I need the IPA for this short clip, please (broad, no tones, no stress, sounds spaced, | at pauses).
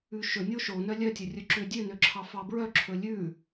ʉ ʃ ɵ nʲ o ʃ o n œ lʲ œ tʲ ɵ rʲ ɵ ǁ ø dʲ ø n ø ǁʰ ɑ f ɑ b ɹ œ ǁʰ ɵ lʲ ʉ